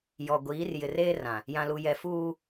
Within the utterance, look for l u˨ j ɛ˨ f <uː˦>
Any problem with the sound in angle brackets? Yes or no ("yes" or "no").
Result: no